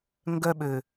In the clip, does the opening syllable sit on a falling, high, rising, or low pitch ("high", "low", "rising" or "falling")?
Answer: high